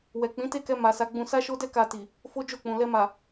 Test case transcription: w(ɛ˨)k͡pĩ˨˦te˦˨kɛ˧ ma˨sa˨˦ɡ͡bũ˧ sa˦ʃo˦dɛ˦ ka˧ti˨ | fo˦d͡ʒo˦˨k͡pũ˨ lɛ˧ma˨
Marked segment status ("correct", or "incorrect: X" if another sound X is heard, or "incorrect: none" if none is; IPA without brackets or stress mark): correct